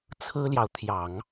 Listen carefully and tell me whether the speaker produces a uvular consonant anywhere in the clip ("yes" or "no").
no